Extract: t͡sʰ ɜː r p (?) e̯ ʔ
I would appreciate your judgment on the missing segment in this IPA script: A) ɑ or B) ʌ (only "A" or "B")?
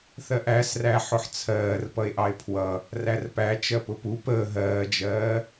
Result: B